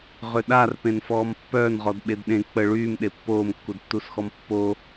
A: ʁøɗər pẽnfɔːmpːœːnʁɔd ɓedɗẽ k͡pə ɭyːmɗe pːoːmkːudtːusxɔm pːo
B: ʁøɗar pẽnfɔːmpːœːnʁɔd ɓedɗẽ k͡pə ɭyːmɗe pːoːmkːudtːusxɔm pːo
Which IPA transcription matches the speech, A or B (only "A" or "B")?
B